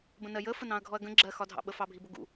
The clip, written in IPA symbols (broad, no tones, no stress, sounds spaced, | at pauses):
b ə̃ n ɜ j ə f ə n ɑ̃ ɐ̯ ɡʱ ɔ ɐ̯ ɡ ə̃ ɡ͡ǁ ɜ x ɒ dʱ ɑ̰ ɓ ə f ɑ bʱ i b ʊ ɡ ṵ